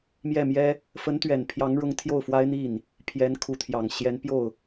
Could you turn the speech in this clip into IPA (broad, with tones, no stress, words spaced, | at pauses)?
mjɛ˥˩mjɛ˥ | fə˧˥nt̪ɥɛ˨˩n pʰjɑ˧˥ŋɻʊ˧˥ŋ t̪ʰjo˥˩ʊ̯fwa˥ɪ̯n̪i˥˩n | pʰjɛ˧˥n kʰu˧˥t̪ʰjɑ˨˩ŋ ɕjɛ˧˥npjo˥˩ʊ̯